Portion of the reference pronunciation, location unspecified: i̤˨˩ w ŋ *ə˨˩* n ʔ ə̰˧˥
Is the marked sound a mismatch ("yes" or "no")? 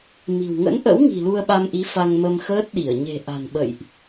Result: yes